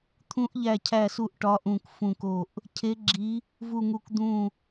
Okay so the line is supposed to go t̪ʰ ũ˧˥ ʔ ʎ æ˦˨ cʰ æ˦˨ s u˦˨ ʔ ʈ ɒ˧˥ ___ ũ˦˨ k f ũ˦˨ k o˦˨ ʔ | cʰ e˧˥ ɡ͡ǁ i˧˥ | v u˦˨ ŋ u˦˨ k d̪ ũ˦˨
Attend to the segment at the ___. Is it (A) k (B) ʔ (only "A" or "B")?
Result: B